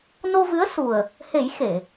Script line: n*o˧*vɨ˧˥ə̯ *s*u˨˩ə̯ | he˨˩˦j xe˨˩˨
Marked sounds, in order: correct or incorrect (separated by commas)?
correct, correct